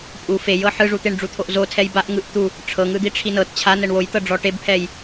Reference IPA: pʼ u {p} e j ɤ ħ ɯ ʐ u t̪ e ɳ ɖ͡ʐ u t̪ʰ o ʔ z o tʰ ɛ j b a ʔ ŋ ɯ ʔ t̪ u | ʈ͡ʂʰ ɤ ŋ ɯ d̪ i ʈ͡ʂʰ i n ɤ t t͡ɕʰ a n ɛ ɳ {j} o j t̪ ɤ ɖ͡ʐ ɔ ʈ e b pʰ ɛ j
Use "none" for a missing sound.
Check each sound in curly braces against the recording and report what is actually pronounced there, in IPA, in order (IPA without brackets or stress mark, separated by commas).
f, w